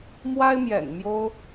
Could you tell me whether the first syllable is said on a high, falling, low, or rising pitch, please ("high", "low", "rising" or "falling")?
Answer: high